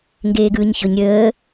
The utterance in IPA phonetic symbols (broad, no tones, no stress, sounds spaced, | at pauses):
ŋ ɡ eː ɡ ɯː ɲ ç ɵ ɲ ɾʲ əː